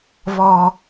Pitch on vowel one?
low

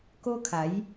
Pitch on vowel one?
high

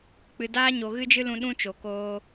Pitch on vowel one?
low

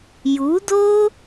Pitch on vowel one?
rising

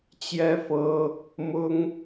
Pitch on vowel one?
high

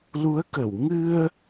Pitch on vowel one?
rising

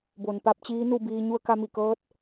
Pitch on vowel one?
low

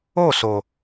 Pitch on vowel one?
falling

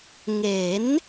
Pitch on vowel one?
rising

